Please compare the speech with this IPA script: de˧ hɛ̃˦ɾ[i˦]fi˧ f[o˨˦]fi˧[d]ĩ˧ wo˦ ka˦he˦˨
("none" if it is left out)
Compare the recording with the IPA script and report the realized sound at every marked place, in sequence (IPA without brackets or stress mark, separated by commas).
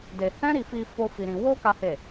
i˧, o˦, ɾ